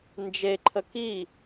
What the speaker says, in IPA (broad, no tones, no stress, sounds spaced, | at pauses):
n d͡ʒ e ǃʰ ə k i